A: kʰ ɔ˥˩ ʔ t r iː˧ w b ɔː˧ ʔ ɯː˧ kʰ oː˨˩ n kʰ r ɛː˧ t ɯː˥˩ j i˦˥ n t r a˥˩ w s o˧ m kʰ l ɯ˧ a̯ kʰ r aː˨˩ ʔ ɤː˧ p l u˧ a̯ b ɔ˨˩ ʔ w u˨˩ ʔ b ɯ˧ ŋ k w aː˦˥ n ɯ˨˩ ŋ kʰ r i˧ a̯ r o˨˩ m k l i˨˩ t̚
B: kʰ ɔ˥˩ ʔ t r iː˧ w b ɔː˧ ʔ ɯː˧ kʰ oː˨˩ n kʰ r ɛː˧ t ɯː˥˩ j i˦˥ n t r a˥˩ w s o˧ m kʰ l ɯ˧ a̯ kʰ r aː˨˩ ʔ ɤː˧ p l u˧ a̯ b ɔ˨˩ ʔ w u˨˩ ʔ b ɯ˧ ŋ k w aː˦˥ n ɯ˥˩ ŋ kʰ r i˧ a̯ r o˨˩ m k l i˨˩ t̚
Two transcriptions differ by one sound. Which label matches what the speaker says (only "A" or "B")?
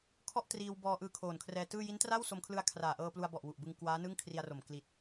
B